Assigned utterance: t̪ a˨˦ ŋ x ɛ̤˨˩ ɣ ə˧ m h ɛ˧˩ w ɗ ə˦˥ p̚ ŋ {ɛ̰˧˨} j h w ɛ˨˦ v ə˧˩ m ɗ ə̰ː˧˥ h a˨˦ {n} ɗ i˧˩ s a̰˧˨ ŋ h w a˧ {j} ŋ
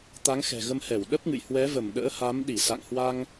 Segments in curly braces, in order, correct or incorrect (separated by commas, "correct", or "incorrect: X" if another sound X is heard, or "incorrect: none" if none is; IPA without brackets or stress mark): incorrect: ɨ̰˧˨, incorrect: m, incorrect: none